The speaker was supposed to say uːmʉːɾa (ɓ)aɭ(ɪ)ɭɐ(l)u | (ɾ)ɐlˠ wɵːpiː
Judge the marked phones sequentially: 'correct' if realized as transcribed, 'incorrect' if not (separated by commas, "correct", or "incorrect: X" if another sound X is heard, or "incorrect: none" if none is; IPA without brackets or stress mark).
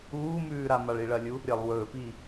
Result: incorrect: m, incorrect: i, incorrect: lʲ, incorrect: ɾʲ